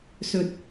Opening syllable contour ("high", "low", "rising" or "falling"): low